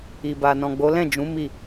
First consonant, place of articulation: labial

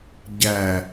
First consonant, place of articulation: palatal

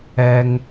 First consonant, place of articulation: velar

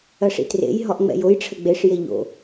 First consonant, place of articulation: retroflex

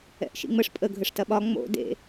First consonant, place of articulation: glottal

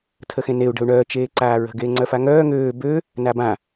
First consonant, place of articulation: alveolar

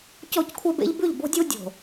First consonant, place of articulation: palatal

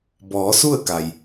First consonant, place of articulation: labial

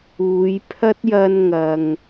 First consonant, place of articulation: palatal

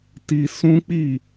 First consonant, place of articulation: alveolar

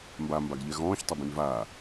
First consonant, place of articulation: labial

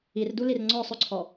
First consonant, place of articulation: alveolar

